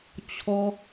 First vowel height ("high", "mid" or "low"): mid